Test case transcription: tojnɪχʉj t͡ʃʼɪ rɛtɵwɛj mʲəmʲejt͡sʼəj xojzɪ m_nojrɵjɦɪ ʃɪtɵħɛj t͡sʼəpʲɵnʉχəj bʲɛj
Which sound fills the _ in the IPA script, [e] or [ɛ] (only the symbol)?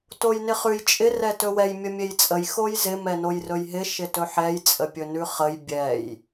ɛ